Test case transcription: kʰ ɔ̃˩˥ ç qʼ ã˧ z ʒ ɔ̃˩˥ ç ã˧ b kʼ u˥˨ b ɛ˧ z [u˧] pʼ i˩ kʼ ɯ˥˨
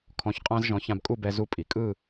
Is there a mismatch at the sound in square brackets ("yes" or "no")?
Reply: no